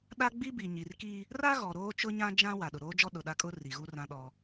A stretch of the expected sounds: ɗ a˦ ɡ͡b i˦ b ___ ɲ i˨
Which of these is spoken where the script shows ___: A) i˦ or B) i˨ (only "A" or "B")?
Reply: B